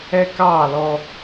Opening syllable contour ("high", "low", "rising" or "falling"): high